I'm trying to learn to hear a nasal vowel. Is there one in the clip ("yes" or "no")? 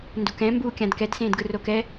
yes